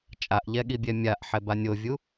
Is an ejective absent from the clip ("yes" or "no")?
no